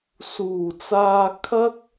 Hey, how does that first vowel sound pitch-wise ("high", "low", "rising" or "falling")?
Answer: low